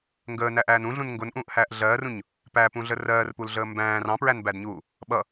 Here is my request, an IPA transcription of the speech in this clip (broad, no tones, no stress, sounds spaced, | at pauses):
ŋ ɡ əː n æ ʔ æː n ũ ɮ ũ n ŋ ɡ ʊ n ʔ ũː ʔ h æː ʔ ɮ ɜː r ũ ɲ | p æ p ũ ɮ ə r ɜː r p u l ɮ əː m b æ̃ː r ɑ̃ p ɹ æ n b æ d ɲ uː | ɓ ʌ